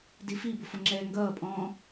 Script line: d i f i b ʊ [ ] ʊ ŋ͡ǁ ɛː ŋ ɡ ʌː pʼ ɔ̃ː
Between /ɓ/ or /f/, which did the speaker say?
f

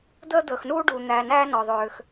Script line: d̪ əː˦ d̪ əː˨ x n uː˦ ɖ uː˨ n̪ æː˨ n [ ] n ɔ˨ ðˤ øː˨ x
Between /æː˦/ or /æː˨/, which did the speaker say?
æː˦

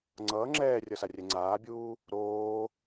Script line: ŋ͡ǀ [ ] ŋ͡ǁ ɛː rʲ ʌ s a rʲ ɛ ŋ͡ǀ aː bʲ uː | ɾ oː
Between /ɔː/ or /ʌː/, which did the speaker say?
ʌː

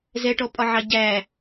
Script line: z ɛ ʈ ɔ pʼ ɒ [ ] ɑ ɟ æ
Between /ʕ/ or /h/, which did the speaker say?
ʕ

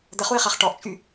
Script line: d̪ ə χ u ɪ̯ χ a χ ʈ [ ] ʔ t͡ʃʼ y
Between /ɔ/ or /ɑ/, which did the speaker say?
ɔ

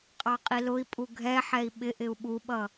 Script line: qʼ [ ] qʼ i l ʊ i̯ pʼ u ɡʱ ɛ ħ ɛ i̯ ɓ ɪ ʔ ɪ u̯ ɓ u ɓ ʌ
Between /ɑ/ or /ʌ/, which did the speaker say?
ɑ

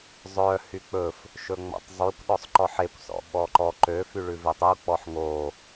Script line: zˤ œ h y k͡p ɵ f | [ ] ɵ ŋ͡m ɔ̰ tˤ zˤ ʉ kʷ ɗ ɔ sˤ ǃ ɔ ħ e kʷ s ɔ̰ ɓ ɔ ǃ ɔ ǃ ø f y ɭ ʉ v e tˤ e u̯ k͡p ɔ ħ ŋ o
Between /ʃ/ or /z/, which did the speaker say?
ʃ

